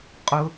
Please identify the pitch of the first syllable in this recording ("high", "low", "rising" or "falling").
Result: high